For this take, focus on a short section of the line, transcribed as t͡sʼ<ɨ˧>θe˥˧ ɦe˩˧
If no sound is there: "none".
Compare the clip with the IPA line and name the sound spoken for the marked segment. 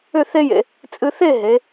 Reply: ɨ˧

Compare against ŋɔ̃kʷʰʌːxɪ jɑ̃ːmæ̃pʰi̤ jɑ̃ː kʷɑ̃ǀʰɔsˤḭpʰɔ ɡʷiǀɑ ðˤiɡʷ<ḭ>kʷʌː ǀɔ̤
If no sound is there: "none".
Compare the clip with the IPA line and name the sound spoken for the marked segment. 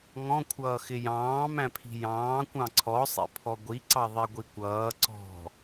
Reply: i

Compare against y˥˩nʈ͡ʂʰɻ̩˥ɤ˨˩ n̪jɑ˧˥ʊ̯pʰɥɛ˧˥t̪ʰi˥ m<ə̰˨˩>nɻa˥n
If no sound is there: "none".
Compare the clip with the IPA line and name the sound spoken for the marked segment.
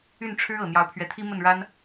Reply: ə˥˩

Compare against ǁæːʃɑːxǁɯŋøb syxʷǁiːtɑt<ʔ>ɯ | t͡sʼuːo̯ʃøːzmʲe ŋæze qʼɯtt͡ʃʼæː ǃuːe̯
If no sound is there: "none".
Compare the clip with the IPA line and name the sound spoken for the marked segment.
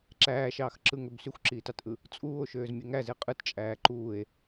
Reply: ʔ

